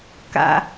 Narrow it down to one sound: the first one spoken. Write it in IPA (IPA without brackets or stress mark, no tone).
k